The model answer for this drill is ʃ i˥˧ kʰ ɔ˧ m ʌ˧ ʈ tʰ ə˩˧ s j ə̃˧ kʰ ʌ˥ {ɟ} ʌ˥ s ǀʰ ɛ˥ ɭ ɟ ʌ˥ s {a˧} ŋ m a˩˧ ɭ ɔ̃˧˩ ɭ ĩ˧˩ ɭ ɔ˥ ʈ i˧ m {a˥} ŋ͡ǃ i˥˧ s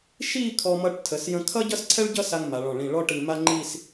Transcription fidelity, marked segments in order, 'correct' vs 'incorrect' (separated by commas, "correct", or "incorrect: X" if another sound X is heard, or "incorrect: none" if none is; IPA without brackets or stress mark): correct, correct, correct